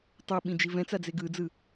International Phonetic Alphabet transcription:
tˤuɓĩ d͡ʒivɛ̃t͡sa d͡zeɡɯd͡zɯ

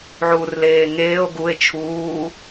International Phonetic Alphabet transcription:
ʕuːrleːŋeːo̯ ɡue̯ t͡ʃʰuː

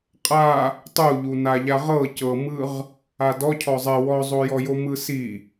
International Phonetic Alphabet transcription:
qʼa | tˤuʎu naʎaʁɤ cɤmɯʁ | adɔ cʰɔzˤɛ wɔzˤojɔjo mɯsi

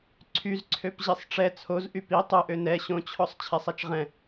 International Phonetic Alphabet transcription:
ǀʰyzǀʰøp ʑisˤʈ͡ʂɛ t͡sʰozʔy pi tˤoʔø nɛ ɕõt͡ɕʰɔsˤ t͡ɕʰɛsˤɛt͡ʃʁɛ̃

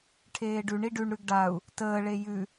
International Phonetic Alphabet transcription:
ʈʰeːɖʉɳi ɖʉɳɾʉɡ ɖau̯ | təːɭe jʉ

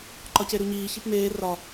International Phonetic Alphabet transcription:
ǃɒceɾuɲiː çipmeː rɒ

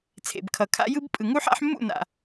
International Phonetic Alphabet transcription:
t͡sʰḛ˨bkʰʌ˨ kʰa̰˦jɯ˦b pʼɯ˨ ŋu˦ħa̰˦ħ mːṵ˦˨na̰˨

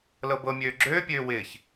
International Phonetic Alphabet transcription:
lɤbɤ mʲøːɡ͡ǁøː pʲøːwɪːç

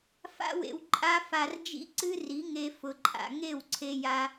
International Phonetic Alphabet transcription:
fa̰˦wḛ˧w ǃʼa˦fa˧r d͡ʒḭ˦ǀɨ˦ri˨˦ŋe˧ fʊ˨ǃʼa̰˨ŋe˦˨w ǀʰe˧ ja˦

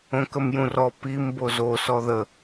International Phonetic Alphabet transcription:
õkəmjũrɔ pim bozo sɔðə

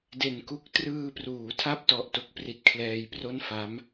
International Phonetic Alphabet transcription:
de˨˩nku˦˥k̚ trɯː˧pruː˩˦ tʰa˥˩p̚tɔ˨˩ʔ to˦˥k̚pri˨˩t̚kʰlɛː˧j pro˥˩nfa˦˥m

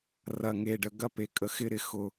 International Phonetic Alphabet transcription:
rɐ˨ŋe˨ɖə˨ ɡɐ˦pe˨kʼə˨ xɪ˦ɾɪ˨ xʊ˦

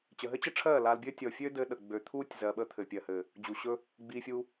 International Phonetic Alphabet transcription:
t͡ɕə˨ɦɘ˦t͡ɕə˦ʈ͡ʂʰɜː˦˨ laː˧lbʲɘː˦ tʲɔ˨ fʲø˦dɘː˧ɗə˨ ɡ͡bø˨ t̪ʰuː˦tʲ zɜ˨ɓə˧ t̪ʰɘ˨pʲɜ˨hɘː˨ | d͡ʑu˨ɕɵ˧ | ɡ͡biː˧fʲuː˧

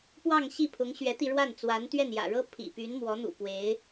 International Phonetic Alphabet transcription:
pwɑ˥˧ŋ ɕi˥˩pʰʊ˧˥ŋ ɕɥɛ˧˥t̪i˧ɻwa˥˩n t͡swa˧˥nt̪ɥɛ˥˩njä̰˨˩ɻɤ˥ pʰḭ˨˩py˧˥nmwɔ˧˥n̪ṵ˨˩ pwe˧˥ɪ̯

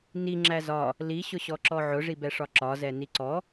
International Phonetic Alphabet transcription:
niŋ͡ǁæ zɒ | liɕʊɕɔ ǁɔʕʊʐibɛ ʂɒǁɒzɛ niǀɔ

